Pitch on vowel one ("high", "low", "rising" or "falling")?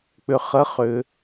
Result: low